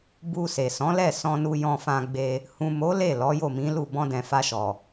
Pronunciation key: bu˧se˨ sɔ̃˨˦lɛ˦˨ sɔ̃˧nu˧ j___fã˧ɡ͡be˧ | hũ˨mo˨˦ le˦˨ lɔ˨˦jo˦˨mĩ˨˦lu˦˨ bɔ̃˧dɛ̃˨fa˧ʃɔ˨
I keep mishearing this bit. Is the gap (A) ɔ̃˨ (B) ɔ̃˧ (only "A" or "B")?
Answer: B